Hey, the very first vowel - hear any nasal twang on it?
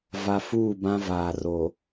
no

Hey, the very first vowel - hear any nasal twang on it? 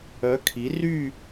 no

